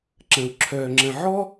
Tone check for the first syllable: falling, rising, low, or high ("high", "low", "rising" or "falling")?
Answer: low